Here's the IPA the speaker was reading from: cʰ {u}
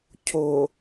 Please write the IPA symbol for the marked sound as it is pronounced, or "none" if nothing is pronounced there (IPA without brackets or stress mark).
o